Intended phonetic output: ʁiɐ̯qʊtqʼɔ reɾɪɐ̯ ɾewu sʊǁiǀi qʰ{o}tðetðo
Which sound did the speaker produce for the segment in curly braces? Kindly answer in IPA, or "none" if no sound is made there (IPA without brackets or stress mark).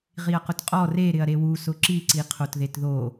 o